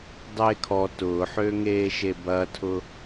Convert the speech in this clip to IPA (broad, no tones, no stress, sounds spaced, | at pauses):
dˤ eː kʰ ɔ t ʊː ħ øː ŋ eː ʃ e b ɐː tʰ ʊ